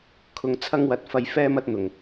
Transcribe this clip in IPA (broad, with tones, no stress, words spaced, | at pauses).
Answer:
kʰʊ˧ŋt͡sʰɐ˥ŋwɐ˧t̚ fɐ˧jfɛː˥m ɐ˥t̚n̪ʊ˨ŋ